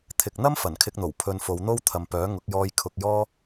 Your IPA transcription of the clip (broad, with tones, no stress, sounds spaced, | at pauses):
t̪ʰ ɪ˨ k̚ n̪ ɐ˥ m f ɐ˨˩ n kʰ ɪ˧ k̚ n̪ o˨˩ w pʰ ɵ˧ n f o˨˧ w n̪ o˥ w t̪ʰ ɐ˨ m p œː˨˥ ŋ ʊ˨˥ k̚ j ɔː˧ j kʰ ʊ˧ k̚ j ɔː˥